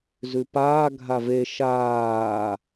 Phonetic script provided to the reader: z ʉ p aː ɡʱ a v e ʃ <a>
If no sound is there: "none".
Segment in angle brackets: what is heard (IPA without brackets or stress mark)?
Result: aː